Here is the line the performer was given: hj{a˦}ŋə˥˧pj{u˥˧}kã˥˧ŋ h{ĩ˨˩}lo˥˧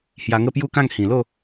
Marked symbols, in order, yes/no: no, yes, yes

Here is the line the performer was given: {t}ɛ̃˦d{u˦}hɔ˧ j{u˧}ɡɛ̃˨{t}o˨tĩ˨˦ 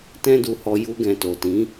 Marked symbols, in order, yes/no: yes, no, yes, yes

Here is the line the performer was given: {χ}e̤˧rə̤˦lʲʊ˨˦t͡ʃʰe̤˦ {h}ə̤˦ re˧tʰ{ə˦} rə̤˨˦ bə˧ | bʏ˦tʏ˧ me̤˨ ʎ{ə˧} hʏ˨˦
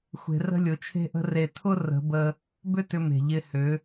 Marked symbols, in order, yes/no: no, no, no, no

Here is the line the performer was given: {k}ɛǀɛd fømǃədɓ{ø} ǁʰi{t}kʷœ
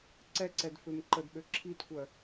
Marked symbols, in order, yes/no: no, yes, yes

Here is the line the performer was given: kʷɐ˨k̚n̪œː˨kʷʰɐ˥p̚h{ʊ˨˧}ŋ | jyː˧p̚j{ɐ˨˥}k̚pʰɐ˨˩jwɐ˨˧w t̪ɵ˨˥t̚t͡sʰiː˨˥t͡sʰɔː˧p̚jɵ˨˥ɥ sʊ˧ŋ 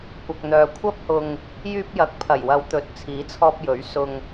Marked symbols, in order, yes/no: no, yes

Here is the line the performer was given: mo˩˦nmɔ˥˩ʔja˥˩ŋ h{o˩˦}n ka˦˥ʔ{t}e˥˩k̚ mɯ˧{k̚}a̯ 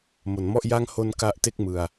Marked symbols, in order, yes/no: no, yes, no

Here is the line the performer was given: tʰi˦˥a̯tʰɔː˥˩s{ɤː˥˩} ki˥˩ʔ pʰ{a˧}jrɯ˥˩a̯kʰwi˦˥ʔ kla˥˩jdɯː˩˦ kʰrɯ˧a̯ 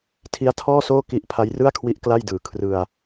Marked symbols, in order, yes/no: no, no

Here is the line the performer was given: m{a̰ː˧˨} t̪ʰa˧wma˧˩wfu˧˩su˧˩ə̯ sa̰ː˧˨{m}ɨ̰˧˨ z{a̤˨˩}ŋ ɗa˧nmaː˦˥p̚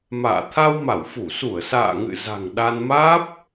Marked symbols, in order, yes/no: yes, no, yes

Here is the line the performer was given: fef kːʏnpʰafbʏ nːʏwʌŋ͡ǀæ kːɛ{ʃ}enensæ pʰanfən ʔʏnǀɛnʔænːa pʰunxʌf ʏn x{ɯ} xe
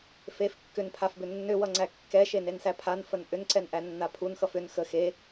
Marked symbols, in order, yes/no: yes, no

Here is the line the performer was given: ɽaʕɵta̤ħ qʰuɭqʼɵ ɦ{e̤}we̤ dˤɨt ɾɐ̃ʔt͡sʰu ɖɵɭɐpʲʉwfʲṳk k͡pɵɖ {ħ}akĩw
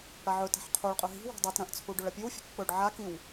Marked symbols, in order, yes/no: no, no

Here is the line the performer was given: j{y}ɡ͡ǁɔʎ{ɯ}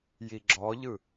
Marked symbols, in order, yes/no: no, yes

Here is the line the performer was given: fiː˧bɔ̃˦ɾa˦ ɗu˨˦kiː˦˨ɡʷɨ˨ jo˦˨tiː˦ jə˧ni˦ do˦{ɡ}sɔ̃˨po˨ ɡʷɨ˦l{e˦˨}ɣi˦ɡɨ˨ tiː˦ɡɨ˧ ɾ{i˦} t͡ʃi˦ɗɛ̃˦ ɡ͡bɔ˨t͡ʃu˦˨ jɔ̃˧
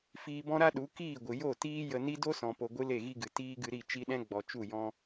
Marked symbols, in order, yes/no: no, yes, no

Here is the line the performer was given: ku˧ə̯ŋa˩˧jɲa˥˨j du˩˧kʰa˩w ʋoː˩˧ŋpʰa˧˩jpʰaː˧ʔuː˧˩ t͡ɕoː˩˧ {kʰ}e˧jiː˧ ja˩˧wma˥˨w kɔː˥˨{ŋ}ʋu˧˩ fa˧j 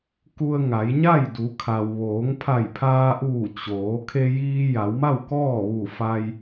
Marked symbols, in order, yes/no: yes, no

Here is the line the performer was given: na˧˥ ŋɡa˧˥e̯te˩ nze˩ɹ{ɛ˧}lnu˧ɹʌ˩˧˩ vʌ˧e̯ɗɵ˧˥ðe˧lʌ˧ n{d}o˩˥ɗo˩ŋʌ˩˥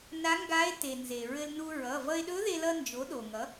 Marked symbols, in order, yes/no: no, no

